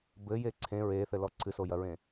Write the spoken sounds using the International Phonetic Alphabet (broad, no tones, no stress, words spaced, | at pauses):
bɘje ǀʰẽ ɹeθɘlɔ ǀʰɨsojɐɹẽ